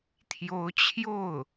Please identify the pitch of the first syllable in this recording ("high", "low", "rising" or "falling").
rising